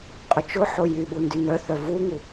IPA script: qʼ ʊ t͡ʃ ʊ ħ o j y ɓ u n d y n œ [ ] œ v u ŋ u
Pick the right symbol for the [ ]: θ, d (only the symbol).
θ